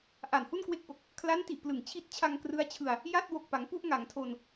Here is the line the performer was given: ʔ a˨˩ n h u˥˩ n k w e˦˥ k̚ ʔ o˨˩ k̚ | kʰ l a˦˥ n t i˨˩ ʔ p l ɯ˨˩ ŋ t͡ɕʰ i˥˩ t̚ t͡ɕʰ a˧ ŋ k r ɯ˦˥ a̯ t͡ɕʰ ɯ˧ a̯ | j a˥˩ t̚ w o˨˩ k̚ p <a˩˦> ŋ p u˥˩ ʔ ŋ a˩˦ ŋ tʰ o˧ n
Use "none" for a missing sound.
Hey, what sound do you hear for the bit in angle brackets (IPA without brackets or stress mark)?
a˩˦